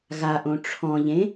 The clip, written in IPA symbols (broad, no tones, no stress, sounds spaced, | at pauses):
ɣ a ʔ õ ʈ͡ʂʰ ɔ̃ ʎ ẽ